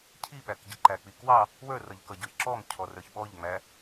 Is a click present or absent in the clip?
present